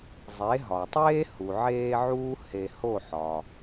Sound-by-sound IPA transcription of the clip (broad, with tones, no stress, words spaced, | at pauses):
zˤe˩˥ɦɒ˩tˤeː˥ hu˩ʕeː˧ ʕuː˥he˧ ho˥˩ħɒ˩